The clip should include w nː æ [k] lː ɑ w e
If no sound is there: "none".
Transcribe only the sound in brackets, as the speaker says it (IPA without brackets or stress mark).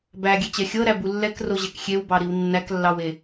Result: k